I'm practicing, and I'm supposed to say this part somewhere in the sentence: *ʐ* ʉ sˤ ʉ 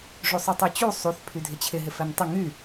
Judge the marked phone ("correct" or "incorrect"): correct